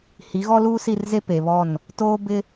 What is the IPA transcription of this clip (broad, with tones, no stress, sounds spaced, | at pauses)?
h i˨˦ ɣ ɔ˦ l uː˦ s i˦˨ r z e˦ p e˨ β ɔ˦˨ n | t oː˦ b ɪ˦